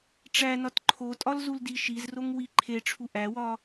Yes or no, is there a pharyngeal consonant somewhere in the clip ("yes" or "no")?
no